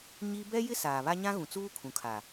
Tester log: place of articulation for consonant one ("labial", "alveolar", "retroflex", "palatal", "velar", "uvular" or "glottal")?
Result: palatal